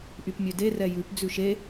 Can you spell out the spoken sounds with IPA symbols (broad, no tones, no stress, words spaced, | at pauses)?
ʔypmʲøde rɛjʉp d͡zʉʃe